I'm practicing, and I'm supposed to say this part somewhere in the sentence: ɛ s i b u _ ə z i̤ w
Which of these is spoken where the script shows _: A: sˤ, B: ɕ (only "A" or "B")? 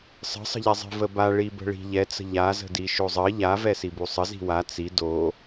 A